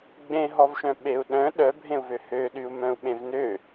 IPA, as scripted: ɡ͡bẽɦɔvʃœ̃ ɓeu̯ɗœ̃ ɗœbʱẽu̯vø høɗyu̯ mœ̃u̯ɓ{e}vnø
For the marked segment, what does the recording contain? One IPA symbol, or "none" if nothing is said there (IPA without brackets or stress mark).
ẽ